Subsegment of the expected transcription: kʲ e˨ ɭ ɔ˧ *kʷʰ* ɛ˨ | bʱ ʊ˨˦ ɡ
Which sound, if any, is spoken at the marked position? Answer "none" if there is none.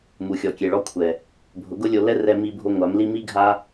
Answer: kʷʰ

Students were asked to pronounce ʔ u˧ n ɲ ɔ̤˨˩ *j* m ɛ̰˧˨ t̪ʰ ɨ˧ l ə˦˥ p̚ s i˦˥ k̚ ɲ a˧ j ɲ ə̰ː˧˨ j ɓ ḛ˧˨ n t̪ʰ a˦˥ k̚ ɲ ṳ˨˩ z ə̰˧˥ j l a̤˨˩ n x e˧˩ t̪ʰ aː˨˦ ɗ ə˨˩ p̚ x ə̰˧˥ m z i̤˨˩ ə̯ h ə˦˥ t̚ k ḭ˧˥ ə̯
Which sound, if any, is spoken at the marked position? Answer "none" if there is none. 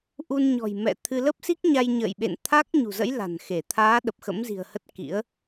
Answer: j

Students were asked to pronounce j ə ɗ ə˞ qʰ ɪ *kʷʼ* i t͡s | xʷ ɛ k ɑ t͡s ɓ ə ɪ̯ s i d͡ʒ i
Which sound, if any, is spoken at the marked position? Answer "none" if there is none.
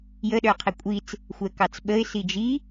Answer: kʷʼ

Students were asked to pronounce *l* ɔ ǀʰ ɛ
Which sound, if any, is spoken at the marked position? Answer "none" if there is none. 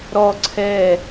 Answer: ɾ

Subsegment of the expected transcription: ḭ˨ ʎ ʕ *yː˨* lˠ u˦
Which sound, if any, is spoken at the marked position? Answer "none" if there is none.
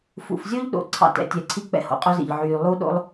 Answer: yː˨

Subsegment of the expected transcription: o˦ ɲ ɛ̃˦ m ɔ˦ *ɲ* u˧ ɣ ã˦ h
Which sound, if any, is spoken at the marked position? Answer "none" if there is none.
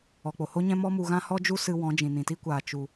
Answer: m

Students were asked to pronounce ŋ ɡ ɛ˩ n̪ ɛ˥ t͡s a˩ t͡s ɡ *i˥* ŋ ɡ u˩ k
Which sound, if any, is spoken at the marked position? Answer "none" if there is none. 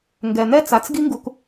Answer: i˥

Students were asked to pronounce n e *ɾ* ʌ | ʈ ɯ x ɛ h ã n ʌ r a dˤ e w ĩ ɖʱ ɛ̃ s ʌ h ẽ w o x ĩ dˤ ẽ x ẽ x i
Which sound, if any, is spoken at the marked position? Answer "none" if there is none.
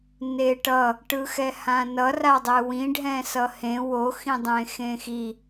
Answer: ʈ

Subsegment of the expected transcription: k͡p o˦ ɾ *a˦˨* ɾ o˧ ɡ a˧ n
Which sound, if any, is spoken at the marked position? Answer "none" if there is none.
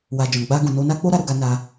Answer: a˦˨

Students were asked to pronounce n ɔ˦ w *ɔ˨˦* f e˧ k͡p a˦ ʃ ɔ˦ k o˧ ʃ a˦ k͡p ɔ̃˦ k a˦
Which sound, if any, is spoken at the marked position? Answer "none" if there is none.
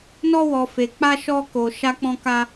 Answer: ɔ˧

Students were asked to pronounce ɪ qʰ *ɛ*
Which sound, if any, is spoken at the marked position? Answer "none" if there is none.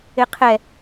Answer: ɛ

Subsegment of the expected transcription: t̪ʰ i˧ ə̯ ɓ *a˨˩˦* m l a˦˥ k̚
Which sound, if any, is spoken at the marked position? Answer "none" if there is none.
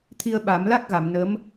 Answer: a˨˩˦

